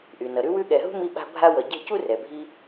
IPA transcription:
ʔy˩nʌ˩ ɾʉ˦wʉ˦ɠɛ˨ɦṳ˥ mi˦ɓa̤˦ bʱa˦wʌ˨ ɟɛ̤˦cu˥rɛ˩bʱi˦

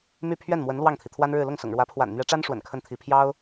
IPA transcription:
my˥˧ pʰɥɛ˥˩nmwə˧˥n lwɑ˥˩ŋt̪ʰi˩t̪ʰwa˥nɻɻ̩˥˧ lʊ˥˩ŋsʊ̰˨˩ŋɻwä˧˥pʰwa̰˨˩n n̪ɥɛ˧˥ʈ͡ʂa˥n ʂwə̰˨˩nkʰə˥˩nt̪ʰi˧˥ pʰjɑ˥ʊ̯

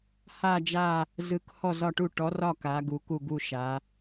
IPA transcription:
ha˦˨d͡ʒa˦˨ | zɯ˨˦k hɔ˦˨zɒ˦˨ʈu˦˨ ʈɔ˨˦rɒ˦˨ ka˨˦ɡu˨˦ ku˦˨ɡu˦˨ ʃa˨˦

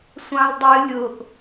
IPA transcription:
sʷɑ̃ldˤɨ lʲʊʔ

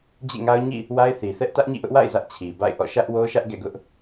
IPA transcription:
d͡ʑḛ˦˨ŋa˦ʊ̯ɲḭ˦˨ | wa˦ɪ̯θi˨θɛ˦ʔ tä˦ʔɲḭ˦˨ʔʊ˦ʔwa̰˦˨ɪ̯ zä˦ʔt͡ɕʰi˨ba̰˦˨ɪ̯ʔɔ̰˦˨ ʃä˦ʔwo˦ʃä˦ʔ ɡɛ̰˦˨ɡʊ˦ʔ

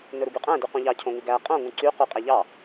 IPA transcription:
nɵɾuɡyqʼæ̃ dyqũʎɑ cʰõŋʉɡæ qʼõ ŋũǀy quqʼæʎɑ

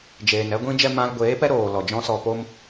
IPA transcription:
d͡ʒeː˨n ɛ˧ɡʷĩ˧d͡ʒɛ˧ mã˧lɡʷeː˨˦pɛ˦ ɾoː˨ lɔ˨d͡ʒɔ̃˦sɔ˧po˦m

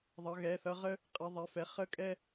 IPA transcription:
ðˤʌ˩˧˩ɣɛ˩˧˩θʌ˦ ʁə˦ | qʼɛ˩˧˩ðˤɛ˩˧˩fɛ˩˧˩ χə˦ kʼɛ˦

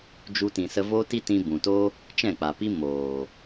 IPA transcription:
d͡ʒu˧tĩ˨ sə˧vo˦ti˦tĩ˧ bũ˨to˦ | t͡ʃɛ̃˦˨k͡pa˨pi˦ moː˨

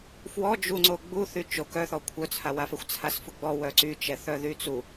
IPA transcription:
fwɔ d͡ʒuŋ͡ǀo ɡ͡bu θyt͡ʃo kœθɔ kʷʰœt͡sʰawafɛxʷ t͡sʰasfuɡ͡bɔ wœǀy t͡ʃɛθœðyt͡su

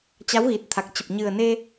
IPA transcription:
t͡ɕa˨˦wɣi˨˩t̚t̪ʰa˨˩k̚t͡ɕə˨˩p̚ ɲɨ˨˩ə̯ne˧

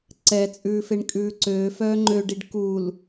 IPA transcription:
ǀɛt͡sʼʉːfeɳ kʼʉːǀøː fœːŋ͡ǃøɖiɖ kul

